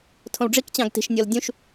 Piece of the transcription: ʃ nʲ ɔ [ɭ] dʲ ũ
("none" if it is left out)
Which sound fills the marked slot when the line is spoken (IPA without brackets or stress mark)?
l